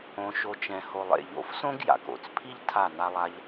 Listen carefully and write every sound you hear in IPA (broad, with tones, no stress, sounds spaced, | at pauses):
õ˧ ʃ o˧ t͡ʃ ɛ̃˨ h o˨ lˠ ḛ˨ ʎ o̰˨˦ f s õ˦ ɡ j a̰˨ k o̰˨ t͡s pʰ i˦ ʎ tʰ a˦˨ n a˦ lˠ a˦ ʎ